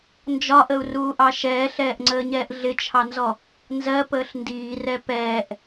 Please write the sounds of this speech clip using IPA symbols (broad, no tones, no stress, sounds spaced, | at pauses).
n d͡ʒ ɒ ʔ ə u̯ r uː ʔ ɑ ʃ ɛː ɬ ɛː ʔ ŋ͡ǀ əː ɲ ɛː ʔ ɮ ɪ t͡ʃʰ ɑ n z ɔ | n z ɜ p əː ɬ n d iː r ɛ p ɛː ʔ